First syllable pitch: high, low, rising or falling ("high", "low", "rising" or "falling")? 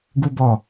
high